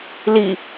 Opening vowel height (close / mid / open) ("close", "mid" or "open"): close